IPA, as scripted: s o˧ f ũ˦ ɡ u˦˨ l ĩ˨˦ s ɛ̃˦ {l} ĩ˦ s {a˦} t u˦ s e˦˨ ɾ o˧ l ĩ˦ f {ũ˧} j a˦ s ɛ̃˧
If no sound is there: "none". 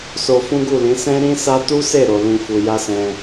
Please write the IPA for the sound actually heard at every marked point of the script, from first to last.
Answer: ɾ, a˦, u˧

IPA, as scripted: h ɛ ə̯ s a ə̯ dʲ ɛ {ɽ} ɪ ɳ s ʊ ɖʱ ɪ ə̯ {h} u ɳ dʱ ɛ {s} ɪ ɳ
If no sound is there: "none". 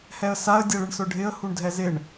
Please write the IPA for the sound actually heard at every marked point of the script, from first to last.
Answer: ɭ, h, z

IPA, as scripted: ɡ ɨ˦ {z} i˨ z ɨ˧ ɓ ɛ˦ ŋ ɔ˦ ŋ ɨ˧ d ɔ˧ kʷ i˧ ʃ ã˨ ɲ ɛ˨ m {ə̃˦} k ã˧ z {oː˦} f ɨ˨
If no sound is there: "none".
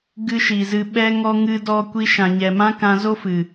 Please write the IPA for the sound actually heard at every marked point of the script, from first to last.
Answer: ʃ, ã˦, o˦

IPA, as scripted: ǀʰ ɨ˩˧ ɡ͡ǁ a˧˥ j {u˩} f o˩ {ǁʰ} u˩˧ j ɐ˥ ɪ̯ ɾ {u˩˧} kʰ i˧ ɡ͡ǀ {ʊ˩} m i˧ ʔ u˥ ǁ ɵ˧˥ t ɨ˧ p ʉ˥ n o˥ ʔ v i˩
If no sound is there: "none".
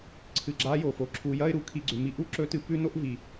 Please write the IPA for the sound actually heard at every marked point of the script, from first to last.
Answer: o˩, ǁʰ, u˩˧, ʉ˩

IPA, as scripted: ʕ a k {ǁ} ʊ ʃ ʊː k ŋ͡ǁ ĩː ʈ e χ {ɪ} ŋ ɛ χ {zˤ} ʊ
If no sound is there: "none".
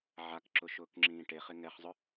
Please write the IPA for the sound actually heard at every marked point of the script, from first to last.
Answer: ǁ, ɪ, zˤ

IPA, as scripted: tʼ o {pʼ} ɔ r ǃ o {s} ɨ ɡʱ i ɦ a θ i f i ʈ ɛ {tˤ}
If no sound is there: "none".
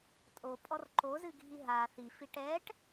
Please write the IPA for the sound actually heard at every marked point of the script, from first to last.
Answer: pʼ, z, ʈ

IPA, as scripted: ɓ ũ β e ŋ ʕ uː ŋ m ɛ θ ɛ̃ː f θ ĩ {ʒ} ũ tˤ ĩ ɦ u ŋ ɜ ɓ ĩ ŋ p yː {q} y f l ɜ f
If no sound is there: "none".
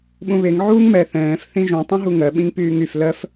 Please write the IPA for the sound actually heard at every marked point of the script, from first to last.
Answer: ʒ, ŋ

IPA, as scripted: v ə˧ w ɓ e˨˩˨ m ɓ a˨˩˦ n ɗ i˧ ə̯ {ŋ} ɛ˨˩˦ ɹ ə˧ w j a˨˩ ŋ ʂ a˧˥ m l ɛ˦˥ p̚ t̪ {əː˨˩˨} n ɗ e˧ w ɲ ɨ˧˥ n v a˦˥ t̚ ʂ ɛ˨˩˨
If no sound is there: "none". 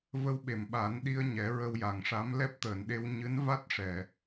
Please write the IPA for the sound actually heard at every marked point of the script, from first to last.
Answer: ɲ, əː˨˩˨

